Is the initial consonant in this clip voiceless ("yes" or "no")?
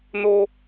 no